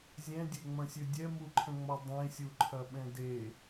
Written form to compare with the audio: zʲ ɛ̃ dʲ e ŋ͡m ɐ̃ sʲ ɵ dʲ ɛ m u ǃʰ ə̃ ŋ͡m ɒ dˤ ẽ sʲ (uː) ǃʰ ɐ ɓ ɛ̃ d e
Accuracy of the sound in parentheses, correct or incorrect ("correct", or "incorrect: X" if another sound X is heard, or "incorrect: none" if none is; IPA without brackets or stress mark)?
incorrect: u